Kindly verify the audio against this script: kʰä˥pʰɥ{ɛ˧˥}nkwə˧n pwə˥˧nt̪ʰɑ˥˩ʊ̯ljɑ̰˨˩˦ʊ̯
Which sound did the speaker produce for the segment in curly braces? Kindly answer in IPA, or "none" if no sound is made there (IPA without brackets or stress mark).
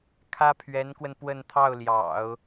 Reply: ɛ˧˥